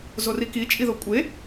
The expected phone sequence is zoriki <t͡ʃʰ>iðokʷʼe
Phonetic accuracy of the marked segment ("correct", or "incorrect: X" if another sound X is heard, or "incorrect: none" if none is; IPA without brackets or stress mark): incorrect: t͡ʃʼ